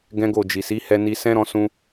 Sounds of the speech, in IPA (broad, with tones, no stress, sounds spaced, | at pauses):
ɡ ɛ̃˦ ɡ o˦˨ d͡ʒ i˨ s i˨˦ h ɛ˧ n i˧ s ɛ̃˦ ɾ ɔ̃˧ s ũ˧